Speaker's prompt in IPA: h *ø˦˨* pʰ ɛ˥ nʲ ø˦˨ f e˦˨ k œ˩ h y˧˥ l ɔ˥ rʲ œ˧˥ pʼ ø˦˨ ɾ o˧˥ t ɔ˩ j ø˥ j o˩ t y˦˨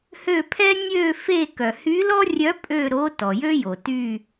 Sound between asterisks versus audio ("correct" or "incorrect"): correct